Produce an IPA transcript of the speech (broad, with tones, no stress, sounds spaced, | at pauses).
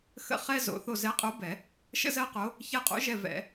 x ə̰˦˨ χ ɛ˥ z o̰˨˩˦ θ o˦˨ z ɛ˧˥ qʼ o˧˥ b ɛ˨˩˦ | ʃ ə̰˥ z ɜ˥ q o˧˥ | ç ɛ˦˨ qʼ o̰˧˥ ʒ ɛ˦˨ v ɛ̰˨˩˦